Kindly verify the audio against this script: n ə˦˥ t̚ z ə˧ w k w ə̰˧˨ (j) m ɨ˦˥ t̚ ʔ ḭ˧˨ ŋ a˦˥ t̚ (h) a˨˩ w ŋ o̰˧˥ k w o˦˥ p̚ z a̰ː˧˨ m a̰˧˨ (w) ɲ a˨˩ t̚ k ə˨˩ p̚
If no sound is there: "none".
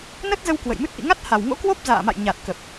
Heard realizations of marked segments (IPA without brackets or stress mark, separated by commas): j, h, j